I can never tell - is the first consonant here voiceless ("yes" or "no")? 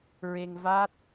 no